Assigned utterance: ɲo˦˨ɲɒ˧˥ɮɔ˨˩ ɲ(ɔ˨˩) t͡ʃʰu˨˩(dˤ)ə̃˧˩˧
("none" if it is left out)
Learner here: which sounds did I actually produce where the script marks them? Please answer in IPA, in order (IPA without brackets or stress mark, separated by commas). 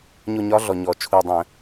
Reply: ɔ˨˩, dˤ